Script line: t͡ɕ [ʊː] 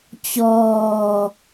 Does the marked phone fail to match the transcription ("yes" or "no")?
yes